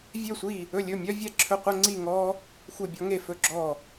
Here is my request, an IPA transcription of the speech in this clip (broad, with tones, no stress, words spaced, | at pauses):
vʲø˥˧sʷi˥˧ | ɵ˥˧lʲɵ˥˧mʲœ˥ vʲɛ˥˧ǁʰɵ˥qʷɛ˥ ŋ͡ǀi˥˧ŋɔ˥ | xʷe˥˧bʲɔ˥ŋe˥˧ fɵ˥˧ɡ͡ǁɔ˥˧